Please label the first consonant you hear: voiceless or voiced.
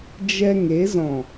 voiced